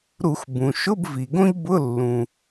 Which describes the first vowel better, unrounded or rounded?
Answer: rounded